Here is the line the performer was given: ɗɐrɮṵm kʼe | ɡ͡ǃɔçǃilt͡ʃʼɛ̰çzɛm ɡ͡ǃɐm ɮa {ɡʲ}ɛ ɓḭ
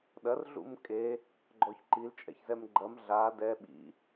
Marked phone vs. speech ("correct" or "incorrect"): incorrect